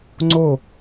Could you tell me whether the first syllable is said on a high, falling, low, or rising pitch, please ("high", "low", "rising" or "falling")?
falling